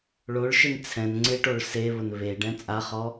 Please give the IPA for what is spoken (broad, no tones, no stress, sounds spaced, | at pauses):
ɭ o ɭ ʃ ɪ n t͡sʰ ɛ̃ n ŋ͡ǀ ɪ ʈ o ɭ s e β ʊ n β e ɖ ɛ̃ t͡sʼ a χ ɔ